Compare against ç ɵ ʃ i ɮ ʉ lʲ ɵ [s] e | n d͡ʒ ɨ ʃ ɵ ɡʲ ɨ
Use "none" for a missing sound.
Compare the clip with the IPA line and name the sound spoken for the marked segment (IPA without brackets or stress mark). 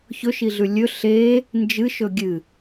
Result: ɬ